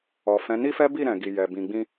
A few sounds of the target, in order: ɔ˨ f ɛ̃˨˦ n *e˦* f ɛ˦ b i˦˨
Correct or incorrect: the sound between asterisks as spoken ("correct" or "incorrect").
incorrect